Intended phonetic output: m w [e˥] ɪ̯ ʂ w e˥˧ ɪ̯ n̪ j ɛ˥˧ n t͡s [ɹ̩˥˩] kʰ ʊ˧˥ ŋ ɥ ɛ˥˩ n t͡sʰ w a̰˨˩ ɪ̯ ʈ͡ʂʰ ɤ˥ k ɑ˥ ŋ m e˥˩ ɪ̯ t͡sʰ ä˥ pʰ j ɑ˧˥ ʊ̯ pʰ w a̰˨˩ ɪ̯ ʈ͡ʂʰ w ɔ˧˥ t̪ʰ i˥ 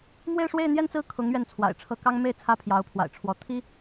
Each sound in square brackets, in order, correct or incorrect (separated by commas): incorrect, correct